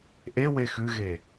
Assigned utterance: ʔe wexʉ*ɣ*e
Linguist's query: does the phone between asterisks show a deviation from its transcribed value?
no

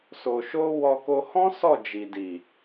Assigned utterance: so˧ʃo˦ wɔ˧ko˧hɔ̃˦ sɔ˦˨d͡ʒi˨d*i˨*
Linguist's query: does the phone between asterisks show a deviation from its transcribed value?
no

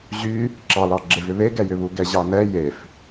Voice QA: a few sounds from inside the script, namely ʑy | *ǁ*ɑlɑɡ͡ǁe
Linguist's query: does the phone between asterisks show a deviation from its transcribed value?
no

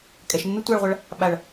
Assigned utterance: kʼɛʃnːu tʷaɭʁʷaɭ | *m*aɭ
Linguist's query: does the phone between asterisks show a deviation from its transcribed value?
yes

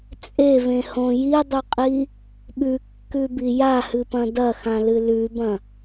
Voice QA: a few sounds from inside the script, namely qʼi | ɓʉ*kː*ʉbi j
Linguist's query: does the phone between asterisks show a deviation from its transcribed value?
no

